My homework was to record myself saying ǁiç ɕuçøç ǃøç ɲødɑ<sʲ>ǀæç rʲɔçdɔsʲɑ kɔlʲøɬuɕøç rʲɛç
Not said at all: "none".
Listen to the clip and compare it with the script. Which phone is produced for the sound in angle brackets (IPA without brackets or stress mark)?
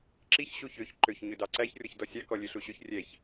none